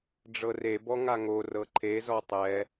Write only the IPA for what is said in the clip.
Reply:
ɖ͡ʐɤrebɔ ŋaŋorɤ ǃʰezɔ tˤɛ

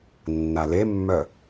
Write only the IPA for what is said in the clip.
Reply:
nːalemːœ

